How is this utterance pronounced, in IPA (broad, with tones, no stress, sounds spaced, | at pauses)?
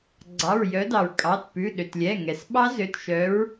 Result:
ɡ͡ǀ ɑ˩˧˩ ɹ j œ˨˦ d ɑ˩ ɹ kʼ ɑ˩˧˩ t p ʉ˩˧˩ ɗ ø˩ t lʲ ɛ˩˧˩ ŋ ɛ˩ s ɓ ɑ˦˥ z ø˩˧˩ t ʃ œ˨˦ ɹ